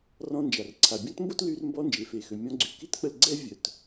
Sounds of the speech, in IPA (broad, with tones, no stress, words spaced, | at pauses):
rɔ̃˧nd͡ʒa˩rǀʰa˩ bʲɔ̃˥tmbo˥tly˧r mbɔ˧ nd͡ʒe˩fe˩xø˩ mʲɔ̃˧ɡ͡ǀy˩ ki˥tk͡pə˧l ɡ͡ǀɛ˥ vʲœ˩t